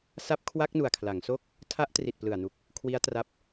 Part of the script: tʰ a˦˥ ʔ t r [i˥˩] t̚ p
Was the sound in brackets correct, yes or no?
no